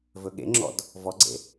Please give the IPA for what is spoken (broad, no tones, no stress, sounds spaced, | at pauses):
v ɵ ɠ ḛ ŋ͡ǁ ɔ̰ d | v ɔ ɡ͡ǀ ḛ